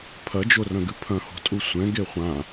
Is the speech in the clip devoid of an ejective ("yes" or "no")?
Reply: no